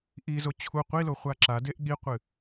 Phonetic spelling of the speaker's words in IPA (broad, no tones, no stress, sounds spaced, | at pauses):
ʔ i z o t͡ɕʰ u qʷ i l o χʷ a ǁ a d e ʔ ɠ i qʷ ɨ